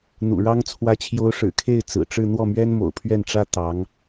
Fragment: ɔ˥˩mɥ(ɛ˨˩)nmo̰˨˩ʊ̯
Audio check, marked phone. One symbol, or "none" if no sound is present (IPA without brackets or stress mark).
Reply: ɛ˥